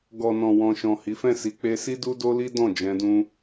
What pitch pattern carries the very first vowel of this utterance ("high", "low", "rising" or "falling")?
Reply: low